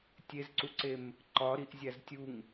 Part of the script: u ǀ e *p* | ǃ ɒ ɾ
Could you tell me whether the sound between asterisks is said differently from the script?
yes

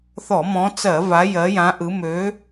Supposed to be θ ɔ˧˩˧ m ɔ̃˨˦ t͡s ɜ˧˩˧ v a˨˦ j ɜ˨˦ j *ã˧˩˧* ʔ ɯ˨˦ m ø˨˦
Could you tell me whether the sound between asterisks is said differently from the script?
yes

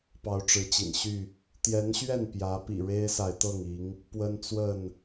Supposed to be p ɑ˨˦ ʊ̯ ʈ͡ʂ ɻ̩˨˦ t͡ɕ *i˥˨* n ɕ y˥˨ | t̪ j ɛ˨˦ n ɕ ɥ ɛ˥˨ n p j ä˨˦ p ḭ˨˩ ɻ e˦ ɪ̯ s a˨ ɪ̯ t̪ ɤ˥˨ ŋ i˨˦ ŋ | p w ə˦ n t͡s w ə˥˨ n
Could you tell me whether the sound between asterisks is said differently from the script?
yes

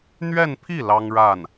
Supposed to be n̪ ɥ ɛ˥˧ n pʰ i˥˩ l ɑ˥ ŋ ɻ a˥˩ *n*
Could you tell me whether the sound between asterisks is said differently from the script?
no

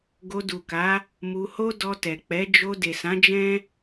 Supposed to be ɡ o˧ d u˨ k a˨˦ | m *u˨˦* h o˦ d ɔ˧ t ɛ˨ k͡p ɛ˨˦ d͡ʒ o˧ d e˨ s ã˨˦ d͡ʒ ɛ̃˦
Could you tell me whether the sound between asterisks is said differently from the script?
yes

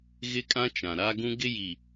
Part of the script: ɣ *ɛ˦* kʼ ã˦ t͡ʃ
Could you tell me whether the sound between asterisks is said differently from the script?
yes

